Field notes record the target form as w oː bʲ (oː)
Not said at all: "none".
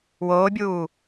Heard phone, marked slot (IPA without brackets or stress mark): uː